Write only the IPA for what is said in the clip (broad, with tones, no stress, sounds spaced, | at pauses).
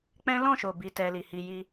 k͡p ɛ̃˦ l ɔ̃˦˨ ʃ o˨ b i˨˦ t ɛ˧ l i˨ h i˧ j i˧